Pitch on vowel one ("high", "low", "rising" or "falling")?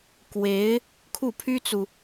rising